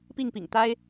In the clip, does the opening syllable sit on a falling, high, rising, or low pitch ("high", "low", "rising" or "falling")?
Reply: falling